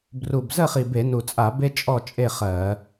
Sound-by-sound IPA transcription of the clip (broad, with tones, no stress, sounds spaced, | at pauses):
b r u˨˩ b z ə˥˨ χ i˨˩ b e˧˩˧ n u˨˩ t͡sʼ a˧˩˧ b e˥ t͡ʃʼ ɔ˥˨ t͡ʃʼ e˥˨ χ ɜ˧˩˧